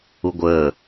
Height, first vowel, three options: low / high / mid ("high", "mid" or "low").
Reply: high